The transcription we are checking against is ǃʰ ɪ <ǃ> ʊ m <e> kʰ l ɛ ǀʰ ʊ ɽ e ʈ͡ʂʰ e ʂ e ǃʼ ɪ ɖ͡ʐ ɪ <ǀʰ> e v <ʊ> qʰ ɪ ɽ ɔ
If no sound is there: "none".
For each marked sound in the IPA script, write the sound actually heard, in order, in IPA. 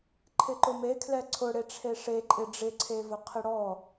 ǃ, e, ǀʰ, ʊ

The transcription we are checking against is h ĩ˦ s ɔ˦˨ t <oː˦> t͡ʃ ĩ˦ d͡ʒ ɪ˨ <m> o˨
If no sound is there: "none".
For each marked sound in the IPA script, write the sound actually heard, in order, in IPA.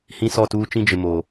uː˦, m

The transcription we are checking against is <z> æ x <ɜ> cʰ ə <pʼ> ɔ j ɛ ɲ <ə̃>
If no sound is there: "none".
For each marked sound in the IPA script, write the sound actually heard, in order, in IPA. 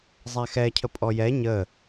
zˤ, ɛ, pʼ, ə

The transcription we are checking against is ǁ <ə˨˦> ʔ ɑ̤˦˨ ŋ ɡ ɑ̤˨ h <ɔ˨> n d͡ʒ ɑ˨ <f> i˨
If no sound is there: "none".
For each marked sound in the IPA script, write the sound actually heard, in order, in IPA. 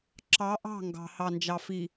ɑ˨˦, ɑ˨, f

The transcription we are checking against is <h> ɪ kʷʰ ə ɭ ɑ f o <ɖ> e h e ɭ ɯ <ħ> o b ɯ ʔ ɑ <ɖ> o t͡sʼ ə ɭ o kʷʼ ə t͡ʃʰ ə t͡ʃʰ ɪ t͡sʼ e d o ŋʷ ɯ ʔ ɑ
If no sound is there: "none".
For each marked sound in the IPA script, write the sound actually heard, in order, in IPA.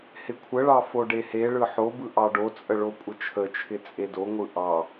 h, ɖ, ħ, ɖ

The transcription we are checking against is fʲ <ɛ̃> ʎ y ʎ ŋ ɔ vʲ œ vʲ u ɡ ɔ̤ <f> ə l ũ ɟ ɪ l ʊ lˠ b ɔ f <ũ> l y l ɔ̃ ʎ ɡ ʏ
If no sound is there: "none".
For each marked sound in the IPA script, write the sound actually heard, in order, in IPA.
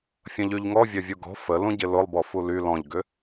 ə̃, f, u

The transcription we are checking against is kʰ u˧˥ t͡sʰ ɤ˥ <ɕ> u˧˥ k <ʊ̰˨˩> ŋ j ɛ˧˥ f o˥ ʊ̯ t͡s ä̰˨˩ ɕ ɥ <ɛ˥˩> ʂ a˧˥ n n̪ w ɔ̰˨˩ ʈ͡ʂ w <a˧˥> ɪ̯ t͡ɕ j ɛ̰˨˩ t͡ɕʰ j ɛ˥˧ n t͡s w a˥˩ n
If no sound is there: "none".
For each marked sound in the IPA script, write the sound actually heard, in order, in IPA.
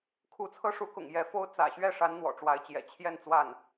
ʂ, ʊ̰˨˩, ɛ˥˩, a˧˥

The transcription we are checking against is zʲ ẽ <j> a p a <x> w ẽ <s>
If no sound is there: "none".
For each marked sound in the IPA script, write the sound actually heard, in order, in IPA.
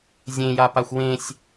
j, xʷ, sʲ

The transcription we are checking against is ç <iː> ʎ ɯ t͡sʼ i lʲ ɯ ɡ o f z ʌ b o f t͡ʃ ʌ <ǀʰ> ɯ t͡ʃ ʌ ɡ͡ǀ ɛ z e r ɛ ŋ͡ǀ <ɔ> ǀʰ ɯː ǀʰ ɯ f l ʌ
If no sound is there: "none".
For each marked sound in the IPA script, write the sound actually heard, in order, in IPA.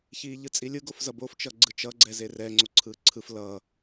iː, ɡ͡ǀ, o

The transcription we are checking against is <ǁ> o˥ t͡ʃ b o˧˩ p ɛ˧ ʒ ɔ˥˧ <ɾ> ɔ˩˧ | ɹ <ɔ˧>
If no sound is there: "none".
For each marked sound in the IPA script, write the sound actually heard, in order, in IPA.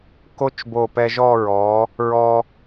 k, ɹ, ɔ˧

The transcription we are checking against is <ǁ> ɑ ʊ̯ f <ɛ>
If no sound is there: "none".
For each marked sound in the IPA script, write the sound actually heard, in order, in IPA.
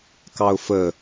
k, ə

